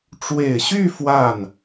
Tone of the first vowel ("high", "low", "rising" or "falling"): low